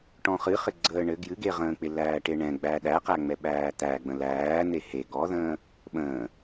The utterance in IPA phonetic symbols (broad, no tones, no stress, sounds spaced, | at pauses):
ʈ ɔ̃ χ ɨ χ ɪ ɡ͡ǀ əː ɳ ɘ ɡ j ɨ ɡ e ʁ ə̃ː k͡p ɪ l æː ʈ e ɳ ɛ̃ ɡ͡b æ ɗ æ q æ ŋ͡m ɛ ɓ æː t̪ æ ɡ͡b ə̃ l æː n̪ e h e ɡ ɔ ð ə̃ː | ɓ ə̃ː